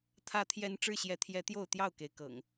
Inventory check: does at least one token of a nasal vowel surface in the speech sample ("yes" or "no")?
no